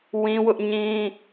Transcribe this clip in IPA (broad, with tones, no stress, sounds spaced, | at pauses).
w ĩ˦ w ʊ˦ ʔ ɲ ĩ˦